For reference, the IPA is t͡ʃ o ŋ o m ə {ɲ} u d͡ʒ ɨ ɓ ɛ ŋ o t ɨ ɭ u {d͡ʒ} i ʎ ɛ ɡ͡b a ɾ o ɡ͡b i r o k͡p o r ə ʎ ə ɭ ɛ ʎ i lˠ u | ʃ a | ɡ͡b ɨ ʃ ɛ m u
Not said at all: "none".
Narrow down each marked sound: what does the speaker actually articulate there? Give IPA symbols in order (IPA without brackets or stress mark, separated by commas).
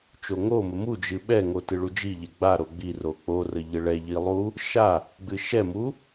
m, d͡ʒ